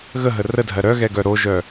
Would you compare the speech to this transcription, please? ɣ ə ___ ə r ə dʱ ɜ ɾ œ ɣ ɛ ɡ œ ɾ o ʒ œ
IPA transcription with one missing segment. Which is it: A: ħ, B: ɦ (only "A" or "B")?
B